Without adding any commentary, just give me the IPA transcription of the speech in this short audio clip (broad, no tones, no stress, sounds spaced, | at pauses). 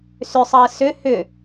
s ʏ sˤ əː s ʏ h ʏ